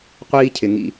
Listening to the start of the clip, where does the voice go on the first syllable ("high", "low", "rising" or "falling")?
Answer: high